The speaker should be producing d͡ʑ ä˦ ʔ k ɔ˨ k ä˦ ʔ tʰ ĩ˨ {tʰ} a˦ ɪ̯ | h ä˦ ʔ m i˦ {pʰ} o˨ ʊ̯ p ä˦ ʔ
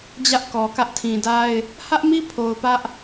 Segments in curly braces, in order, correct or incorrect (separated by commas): incorrect, correct